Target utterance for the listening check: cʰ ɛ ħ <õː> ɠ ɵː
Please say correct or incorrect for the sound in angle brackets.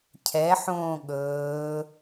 correct